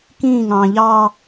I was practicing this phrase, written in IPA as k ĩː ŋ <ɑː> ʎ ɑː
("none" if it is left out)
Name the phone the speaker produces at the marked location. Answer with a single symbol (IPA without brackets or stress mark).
ɑ̃ː